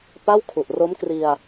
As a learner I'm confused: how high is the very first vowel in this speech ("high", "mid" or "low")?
low